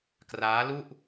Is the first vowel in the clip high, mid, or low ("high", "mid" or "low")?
low